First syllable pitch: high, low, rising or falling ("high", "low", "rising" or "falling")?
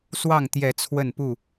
falling